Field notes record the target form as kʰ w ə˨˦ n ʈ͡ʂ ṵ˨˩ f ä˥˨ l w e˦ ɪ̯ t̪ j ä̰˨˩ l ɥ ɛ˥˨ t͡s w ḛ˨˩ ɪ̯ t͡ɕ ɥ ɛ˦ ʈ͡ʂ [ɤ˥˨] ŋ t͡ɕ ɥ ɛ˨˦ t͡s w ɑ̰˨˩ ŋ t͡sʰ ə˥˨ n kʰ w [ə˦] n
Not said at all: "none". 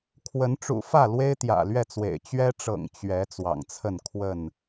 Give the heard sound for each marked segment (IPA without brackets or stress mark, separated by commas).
ɤ̰˨˩, ə˥˨